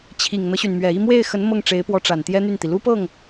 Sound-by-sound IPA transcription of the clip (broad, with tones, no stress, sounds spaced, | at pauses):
t͡ɕʰ i˨˩ ŋ n̪ ɤ˦ ɕ y˩ n m ɥ ɛ˨˩ i˥˧ m w e˥˩ ɪ̯ x ə˧˥ n m ɤ˥˩ ŋ ʈ͡ʂ e˧˥ ɪ̯ p w ɔ˧˥ ʈ͡ʂ a˨˩ n t̪ j ɛ˥ n̪ y˥˩ n t̪ i˩ l u˥ p ɤ˥˩ ŋ